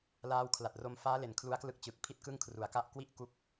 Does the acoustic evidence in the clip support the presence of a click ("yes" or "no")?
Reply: no